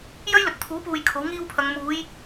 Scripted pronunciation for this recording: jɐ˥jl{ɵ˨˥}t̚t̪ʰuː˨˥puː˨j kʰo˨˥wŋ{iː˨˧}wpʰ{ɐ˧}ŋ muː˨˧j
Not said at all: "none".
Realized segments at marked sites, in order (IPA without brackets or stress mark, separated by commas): ɵ˨˥, iː˥, ɐ˨˧